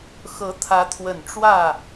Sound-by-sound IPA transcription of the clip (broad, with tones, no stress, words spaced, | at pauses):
xɤ˧˥t̪ʰä˧˥t̪ʰwə˨˩n ʈ͡ʂwä˥˩